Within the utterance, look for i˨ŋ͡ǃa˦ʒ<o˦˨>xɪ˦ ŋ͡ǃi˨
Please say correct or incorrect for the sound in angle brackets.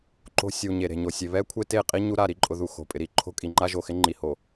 incorrect: o˨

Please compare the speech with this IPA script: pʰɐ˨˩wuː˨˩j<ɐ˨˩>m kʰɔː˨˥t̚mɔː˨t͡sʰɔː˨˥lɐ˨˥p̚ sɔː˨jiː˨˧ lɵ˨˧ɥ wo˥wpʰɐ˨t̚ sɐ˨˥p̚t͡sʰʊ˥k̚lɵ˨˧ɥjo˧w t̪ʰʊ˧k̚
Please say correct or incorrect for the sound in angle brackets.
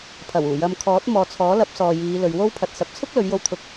incorrect: ɐ˧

